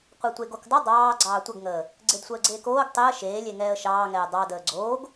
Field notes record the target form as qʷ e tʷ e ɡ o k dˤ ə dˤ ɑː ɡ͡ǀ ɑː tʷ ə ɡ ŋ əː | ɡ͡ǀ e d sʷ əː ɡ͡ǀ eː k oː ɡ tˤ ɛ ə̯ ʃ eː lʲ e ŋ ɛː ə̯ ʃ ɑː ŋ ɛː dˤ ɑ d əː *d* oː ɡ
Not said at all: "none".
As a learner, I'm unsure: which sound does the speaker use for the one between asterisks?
ɡ͡ǀ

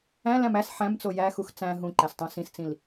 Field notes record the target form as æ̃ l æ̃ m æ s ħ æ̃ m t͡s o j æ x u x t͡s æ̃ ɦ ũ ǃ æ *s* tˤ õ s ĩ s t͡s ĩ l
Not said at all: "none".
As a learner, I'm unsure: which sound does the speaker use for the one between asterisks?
s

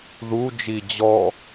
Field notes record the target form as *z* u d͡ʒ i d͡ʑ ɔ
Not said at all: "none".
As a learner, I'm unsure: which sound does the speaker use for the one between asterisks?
ð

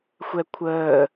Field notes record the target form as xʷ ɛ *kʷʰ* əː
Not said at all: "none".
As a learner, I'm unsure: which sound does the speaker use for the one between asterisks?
kʷʰ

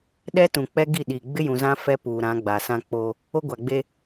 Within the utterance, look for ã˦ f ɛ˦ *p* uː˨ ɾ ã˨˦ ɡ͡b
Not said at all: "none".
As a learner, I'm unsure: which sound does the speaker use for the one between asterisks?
p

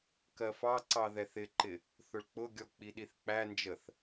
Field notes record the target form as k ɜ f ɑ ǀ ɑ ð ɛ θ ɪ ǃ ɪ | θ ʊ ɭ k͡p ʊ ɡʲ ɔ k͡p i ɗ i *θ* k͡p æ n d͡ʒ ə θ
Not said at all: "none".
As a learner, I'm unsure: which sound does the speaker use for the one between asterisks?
θ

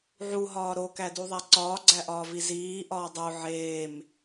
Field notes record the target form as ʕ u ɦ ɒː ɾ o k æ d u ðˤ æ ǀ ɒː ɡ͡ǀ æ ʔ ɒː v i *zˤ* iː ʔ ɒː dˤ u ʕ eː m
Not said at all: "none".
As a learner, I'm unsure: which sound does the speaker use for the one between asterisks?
z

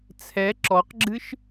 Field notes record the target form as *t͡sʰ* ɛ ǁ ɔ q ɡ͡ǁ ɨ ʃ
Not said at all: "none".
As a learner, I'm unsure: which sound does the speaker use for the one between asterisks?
t͡sʰ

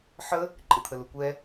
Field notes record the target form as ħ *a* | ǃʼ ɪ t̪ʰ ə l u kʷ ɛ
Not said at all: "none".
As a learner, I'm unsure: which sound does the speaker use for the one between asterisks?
ə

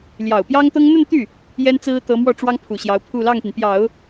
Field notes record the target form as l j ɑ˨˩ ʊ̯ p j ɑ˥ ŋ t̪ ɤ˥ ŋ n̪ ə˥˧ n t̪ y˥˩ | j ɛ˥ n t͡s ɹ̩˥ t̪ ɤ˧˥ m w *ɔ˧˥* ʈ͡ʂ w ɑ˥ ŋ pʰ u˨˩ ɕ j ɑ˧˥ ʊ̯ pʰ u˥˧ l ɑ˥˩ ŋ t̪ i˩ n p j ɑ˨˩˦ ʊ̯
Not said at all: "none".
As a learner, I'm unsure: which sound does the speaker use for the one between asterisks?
ɔ˥˩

